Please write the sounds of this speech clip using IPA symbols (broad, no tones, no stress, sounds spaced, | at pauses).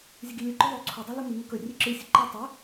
zʲ ə ɡ i lʲ ɨ ǃ ɵ ðˤ o ǀʰ o dˤ ɵ l ɵ m ɨ ŋ ɵ k ɵ rʲ ɨ ǁ ɨ sʲ ə ǃ i tˤ ə